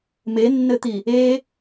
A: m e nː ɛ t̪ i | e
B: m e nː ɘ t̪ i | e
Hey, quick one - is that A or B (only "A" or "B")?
B